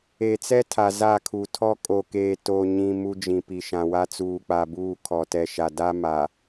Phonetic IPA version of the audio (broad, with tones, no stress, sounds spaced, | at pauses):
e˨ t͡s ɛ˦ tʰ a˨ z a˦˨ kʰ u˨ tʰ ɔ˦ kʼ o˨ k eː˨ t o˨ ɲ ĩ˨ m u˦ d͡ʒ ĩ˨ p i˨ ʃ ã˨ w a˦ t͡s uː˨ k͡p a˨ b uː˦˨ kʰ ɔ˨ t ɛ˨ ʃ a˨ d a˦ m a˨